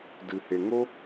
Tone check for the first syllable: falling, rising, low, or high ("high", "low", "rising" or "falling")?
low